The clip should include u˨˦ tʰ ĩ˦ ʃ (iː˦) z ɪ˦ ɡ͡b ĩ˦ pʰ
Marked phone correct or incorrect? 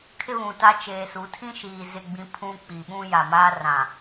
incorrect